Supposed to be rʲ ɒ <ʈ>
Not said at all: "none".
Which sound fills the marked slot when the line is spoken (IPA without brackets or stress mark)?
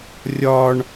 ɳ